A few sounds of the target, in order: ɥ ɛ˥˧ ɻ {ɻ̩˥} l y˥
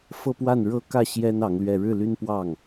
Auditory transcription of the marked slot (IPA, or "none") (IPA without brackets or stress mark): ɻ̩˥˩